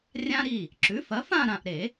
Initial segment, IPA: rʲ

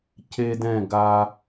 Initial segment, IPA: c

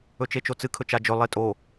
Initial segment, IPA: ɵ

